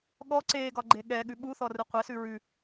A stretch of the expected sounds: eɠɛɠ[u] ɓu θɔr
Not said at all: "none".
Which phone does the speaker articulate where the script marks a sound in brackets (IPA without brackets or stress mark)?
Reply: ʉ